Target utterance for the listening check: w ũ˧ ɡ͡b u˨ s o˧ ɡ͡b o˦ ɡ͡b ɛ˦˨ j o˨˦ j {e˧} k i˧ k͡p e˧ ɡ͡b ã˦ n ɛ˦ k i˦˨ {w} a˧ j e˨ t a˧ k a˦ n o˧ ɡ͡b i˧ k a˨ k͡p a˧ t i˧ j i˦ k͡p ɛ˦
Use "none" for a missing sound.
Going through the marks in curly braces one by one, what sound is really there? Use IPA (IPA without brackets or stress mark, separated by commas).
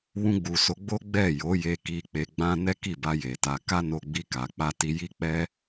e˧, b